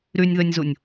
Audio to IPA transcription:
ɾ y nʲ ð ø nʲ z u nʲ

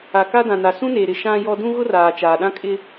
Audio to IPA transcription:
a˨ k a˦ d ã˨ n a˨ s ũ˦ n eː˨ ɾ ɪ˨ ʃ ã˦ j ɔ˦ d ũ˦ ɣ ʊ˦ r aː˨ t͡ʃ aː˨ ɗ ã˦ kʼ ɪ˦

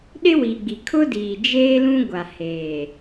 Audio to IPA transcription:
ɗ ɪ˦ w i˨ ɡ͡b i˨ kʰ ʊ˦ d iː˨ d͡ʒ eː˦ l ũ˦ ɡʷ a˨ h eː˨

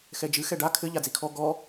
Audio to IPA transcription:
x ɛ d͡ʒ ɨ x ɛ ɖ a kʰ ɘ ʎ a d͡z i kʰ ɔ ɡ ɔ

